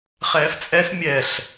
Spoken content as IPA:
χ ɛː f t͡sʼ ɛ s mʲ ɛ ɬ

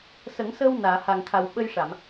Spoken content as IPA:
s ə˨˩˦ ŋ s əː˧ w n aː˨˩˨ h a˨˩ ŋ t̪ʰ a˨˩ w ɓ ə˧ j ʂ a˨˩˨ m

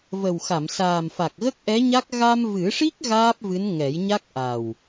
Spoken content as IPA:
v ə˨˩ w x a˨˩˨ m s aː˨˩ m f a˨˩ k̚ ɣ ə˦˥ k̚ ʔ ɛ˧˥ ɲ a˦˥ k̚ ɣ a˧ m v ɨ˨˩˦ ʂ i˦˥ k̚ ɣ aː˦˥ p̚ v ɨ˧˥ n ŋ ɛ˨˩˦ j ɲ a˦˥ k̚ ʔ a˨˩ w

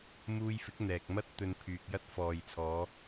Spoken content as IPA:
m uː˧ j f ɪ˨˥ k̚ n̪ ɛː˨ k̚ m ɐ˥ t̚ t̪ ɵ˧ n pʰ yː˨ k̚ j ɐ˥ t̚ f ɔː˨ j t͡sʰ ɔː˨˧

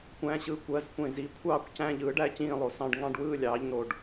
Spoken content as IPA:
kʷ æ̃˧˥˧ ɕ ɯ˧˥˧ kʷ ɜ˧˥˧ z kʷ ẽ˥˧ z i˧˥˧ kʷʰ ɑː˥˧ kʷ c æ̃˧˥˧ ʎ ɯː˩˥ ɖ æ˩˥ c ĩː˥˧ lˠ o˨ s ɑ̃˥˧ ɖ ŋ ɑ̃˥˧ ɖ w ɯː˥˧ lʲ ɑː˩˥ ʎ n o˨ ɖ

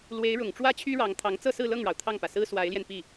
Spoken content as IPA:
l w e˧˥ ɪ̯ ɻ ʊ˨˩ ŋ ʈ͡ʂ w ä˥ t͡ɕʰ y˥ ɻ ɑ˧˥ ŋ t̪ʰ ɑ˧˥ ŋ t͡s ɤ˥˧ s ɹ̩˥˧ l ɤ˥˩ ŋ ɻ ɑ˩ ʊ̯ t̪ʰ ɑ˥˩ ŋ p ä˩ s ɹ̩˥ s w a˧˥ ɪ̯ l j ɛ˧ n p i˥˩

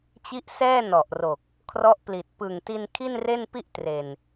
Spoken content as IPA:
t͡ɕ i˦˥ ʔ s ɛː˥˩ n ɔ˨˩ ʔ r o˨˩ k̚ | kʰ r ɔ˦˥ ʔ p l i˨˩ t̚ p ɯ˨˩ ŋ t i˧ n kʰ i˥˩ n r e˥˩ n p i˥˩ ʔ t r e˨˩ n

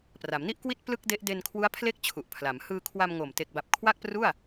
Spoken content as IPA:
p r a˩˦ m n i˥˩ ʔ k w i˥˩ t̚ p l ɯ˥˩ k̚ d e˦˥ ʔ d e˧ n kʰ w u˦˥ a̯ pʰ l e˥˩ k̚ t͡ɕʰ u˨˩ ʔ pʰ l a˩˦ m h ɯː˧ kʰ w a˧ m ŋ o˨˩ m t e˨˩ k̚ b a˨˩ p̚ kʰ w a˥˩ k̚ p r u˥˩ a̯

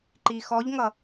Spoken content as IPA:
ǃ i x ɔ ʎ ŋ ʌ

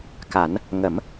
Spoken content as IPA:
k a˨˩˦ n | ŋ ə˨˩˦ m

